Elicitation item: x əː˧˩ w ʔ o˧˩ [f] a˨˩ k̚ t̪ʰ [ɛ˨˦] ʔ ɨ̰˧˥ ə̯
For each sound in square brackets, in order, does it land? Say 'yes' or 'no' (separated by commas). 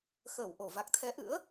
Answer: no, yes